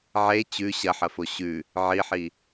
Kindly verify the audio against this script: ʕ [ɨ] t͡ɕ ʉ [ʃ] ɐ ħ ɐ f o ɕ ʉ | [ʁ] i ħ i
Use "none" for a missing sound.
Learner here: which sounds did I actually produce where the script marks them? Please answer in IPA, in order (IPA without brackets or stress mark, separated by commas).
e, ɕ, ʕ